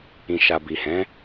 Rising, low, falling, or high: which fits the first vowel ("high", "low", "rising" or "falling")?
low